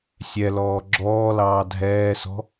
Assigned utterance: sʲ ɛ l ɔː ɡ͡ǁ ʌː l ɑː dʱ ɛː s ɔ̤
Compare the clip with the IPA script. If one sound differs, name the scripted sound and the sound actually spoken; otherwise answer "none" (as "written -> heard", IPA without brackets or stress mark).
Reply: ʌː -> ɔː